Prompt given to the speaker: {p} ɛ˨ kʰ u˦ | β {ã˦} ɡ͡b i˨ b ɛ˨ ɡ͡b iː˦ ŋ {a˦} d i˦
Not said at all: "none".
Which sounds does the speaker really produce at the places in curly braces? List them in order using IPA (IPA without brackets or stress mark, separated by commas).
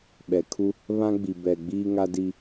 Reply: ɓ, ã˦, a˦